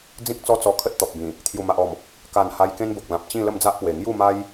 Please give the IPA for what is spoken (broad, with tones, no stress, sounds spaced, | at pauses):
d͡z ĩ˦ k̚ t͡s ɔ˦ t͡s ɔ˧ kʰ ə˦ t̚ t̪ ɔ˨ p̚ b ĩ˨˩ | t̪ʰ j u˨˩ m a˨ ʔ ɔ˨˩ m | k a˨˩ n h a˧ j k ẽ˦ n b o˨ k̚ l ã˨ p̚ t͡ɕ ĩ˥˧ l ə˥˧ m d͡z a˦ ʔ p w e˨˩ ŋ j u˥˧ m a˦ j